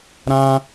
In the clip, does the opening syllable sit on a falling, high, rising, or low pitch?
high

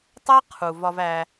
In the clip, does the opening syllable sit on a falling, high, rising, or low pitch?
high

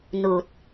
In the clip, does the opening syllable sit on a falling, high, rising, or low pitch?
low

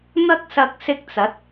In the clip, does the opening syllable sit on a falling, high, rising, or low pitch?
high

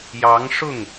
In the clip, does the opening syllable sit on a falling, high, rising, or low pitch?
rising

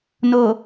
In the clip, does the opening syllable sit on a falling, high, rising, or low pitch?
low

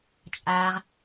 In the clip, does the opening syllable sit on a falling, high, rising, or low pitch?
low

